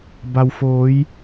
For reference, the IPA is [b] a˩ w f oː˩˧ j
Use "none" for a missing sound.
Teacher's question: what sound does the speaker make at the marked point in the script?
b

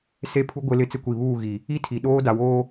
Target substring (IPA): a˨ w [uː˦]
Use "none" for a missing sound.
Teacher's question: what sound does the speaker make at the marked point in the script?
oː˦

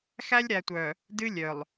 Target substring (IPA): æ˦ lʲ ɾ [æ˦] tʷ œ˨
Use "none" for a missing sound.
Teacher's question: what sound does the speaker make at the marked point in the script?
æ˨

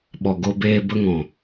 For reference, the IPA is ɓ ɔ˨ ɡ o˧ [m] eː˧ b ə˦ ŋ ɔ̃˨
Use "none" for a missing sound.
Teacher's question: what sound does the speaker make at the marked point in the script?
b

